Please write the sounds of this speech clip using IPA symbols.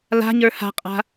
la̤ɲə˞ ha̤qʼa̤

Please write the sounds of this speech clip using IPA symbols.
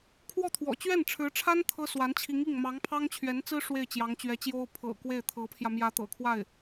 kʰwɔ˥˩t̪ʰwɔ̰˨˩ t͡ɕɥɛ˥˩nʈ͡ʂʰɻ̩˧˥ʈ͡ʂʰa˥n t̪ʰɤ˥swa˧˥nt͡ɕʰi˧˥ŋi˥˩ŋ mɑ˧˥ŋpʰɑ˥ŋt͡ɕʰɥɛ˧˥nt͡sɹ̩˥ ʂwe˥˩ɪ̯t͡ɕjɑ˧˥ŋt͡ɕɥɛ˧˥t͡ɕjo˥ʊ̯ pʰɤ̰˨˩ kwe˥˩ɪ̯t̪ʰɤ˧˥pʰjä˧ mjä˧˥t̪ɤ̰˨˩kʰwa˥˩ɪ̯

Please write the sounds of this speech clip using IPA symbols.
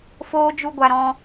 foː˦d͡ʒu˦ɡʷa˧ ɾɔ̃˧

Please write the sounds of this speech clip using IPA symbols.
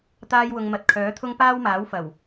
t̪aː˥jwʊ˧ŋmɐ˧t̚ kʰœː˨˥t̪ʰʊ˥ŋ paː˥wmaː˨˥wfɐ˨˩w

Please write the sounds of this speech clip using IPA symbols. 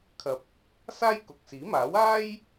kʰɐ˧p̚ | saː˥jkʊ˨k̚siː˨˥maː˨˥w aː˥j

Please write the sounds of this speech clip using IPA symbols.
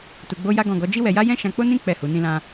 tu˧ɡ͡bo˦ja˦ ɡɔ̃˦˨ɡɔ˨˦ d͡ʒi˦wɛ˧ja˦ jɛ̃˦ʃã˧k͡po˦nĩ˦ k͡pɛ˦˨hu˨˦ nĩ˧lã˧

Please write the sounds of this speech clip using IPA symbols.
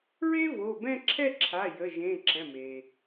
ɹe˥vo˩˧˩bɛ̃˥˧ ǁʰɛ˥˧ǁʰa˩˧˩ jə˩˧˩ʒẽ˩˧˩ ǁɛ̃˩˧˩me˩

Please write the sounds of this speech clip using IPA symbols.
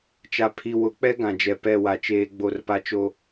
t͡ʃa˨pʰi˨ wʊ˨˦k͡pɛ˦ ɡã˨d͡ʒɛ˨ pɛ˦˨wa˨t͡ʃeː˦ ɡ͡bo˦˨rpa˦t͡ʃo˦

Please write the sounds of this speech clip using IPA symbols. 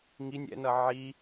ŋinʲ ɛ̰nʌ ʕi

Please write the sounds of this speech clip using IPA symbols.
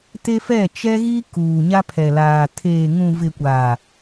te˦ fɛ˦˨t͡ʃɛ˦ɣi˦ kuː˨ɲa˦pʰɛ˨laː˨ tʰeː˨ŋũ˨vɪ˨ kʷaː˨

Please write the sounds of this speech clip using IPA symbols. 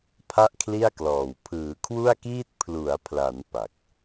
pʰa˥˩ʔkʰli˥˩a̯klɔː˨˩w pʰɯː˩˦kʰwu˥˩a̯kiː˥˩t̚ pʰlu˩˦a̯pʰla˩˦n pa˨˩k̚

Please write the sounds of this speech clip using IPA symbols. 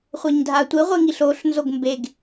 χʷeɲdʱatʷi ʁʷiŋiɬoɬ nzoɡmbeɡ

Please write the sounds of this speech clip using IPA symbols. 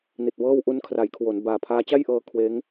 ni˨˩t̚wɤː˥˩w ʔu˧nkʰra˩˦jkʰwo˩˦nbaː˨˩ pʰaː˦˥ t͡ɕa˥˩jʔɤː˧ kʰweː˦˥ŋ

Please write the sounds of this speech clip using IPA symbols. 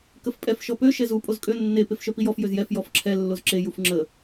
kəfpʼɛf ʃɔpø ʃɛzu pʼozkʼø nːe pefʃœpijɔf jøzjɛf jɔfǁʰɛ lːozǁe jufŋ͡ǁə

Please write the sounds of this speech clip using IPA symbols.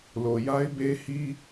lo˨ja˦ɪ̯ be˦hi˦

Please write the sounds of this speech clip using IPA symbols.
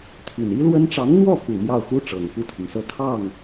t̪ʰi˨˩ni˥lwə˥n ʈ͡ʂɑ˧˥ŋn̪wɔ˥˩ku˨˩ mjɑ˥˩ʊ̯xu˥ ʈ͡ʂɤ˨˩ŋpu˥˩t̪ʰi˩ŋsɤ˥˧ t̪ʰɑ˥˩ŋ

